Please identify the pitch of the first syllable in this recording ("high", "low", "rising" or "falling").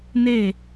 falling